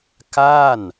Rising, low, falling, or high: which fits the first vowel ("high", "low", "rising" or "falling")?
falling